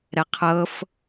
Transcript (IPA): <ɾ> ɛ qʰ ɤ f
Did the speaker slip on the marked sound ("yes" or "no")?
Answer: no